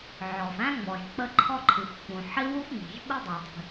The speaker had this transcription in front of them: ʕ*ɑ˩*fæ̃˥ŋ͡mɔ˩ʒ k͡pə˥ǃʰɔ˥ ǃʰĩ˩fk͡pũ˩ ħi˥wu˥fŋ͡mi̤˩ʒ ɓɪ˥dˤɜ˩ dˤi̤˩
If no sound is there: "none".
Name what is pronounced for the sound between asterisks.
ɔ˩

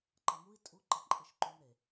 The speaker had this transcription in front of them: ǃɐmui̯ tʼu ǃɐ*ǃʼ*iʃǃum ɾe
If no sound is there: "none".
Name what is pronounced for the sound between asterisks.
ǃʼ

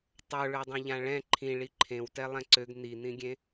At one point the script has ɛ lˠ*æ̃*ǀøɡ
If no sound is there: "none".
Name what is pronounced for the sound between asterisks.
ɛ̃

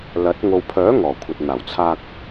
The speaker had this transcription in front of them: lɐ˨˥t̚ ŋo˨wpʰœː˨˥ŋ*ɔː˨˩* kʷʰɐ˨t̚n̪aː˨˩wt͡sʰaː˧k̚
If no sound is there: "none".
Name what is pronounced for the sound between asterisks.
ɔː˨˩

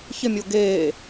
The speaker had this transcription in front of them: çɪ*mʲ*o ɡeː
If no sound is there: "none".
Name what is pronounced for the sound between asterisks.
mʲ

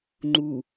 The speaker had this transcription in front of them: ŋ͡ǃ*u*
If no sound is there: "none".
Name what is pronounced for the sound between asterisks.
u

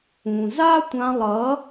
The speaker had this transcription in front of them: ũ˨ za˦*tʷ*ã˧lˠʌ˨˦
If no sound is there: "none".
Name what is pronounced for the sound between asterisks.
tʷ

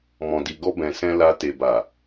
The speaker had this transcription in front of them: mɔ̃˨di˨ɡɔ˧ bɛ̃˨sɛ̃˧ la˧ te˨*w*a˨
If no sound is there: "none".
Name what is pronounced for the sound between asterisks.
b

